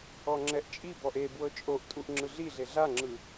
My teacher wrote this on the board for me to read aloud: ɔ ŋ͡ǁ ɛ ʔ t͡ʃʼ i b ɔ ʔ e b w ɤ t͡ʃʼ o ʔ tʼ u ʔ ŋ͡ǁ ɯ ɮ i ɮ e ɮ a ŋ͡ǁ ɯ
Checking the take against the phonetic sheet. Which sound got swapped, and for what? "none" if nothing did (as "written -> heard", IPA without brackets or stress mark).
none